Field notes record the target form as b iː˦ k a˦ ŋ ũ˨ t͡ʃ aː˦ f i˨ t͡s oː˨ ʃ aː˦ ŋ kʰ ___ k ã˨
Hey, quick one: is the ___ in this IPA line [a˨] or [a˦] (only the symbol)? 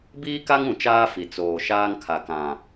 a˨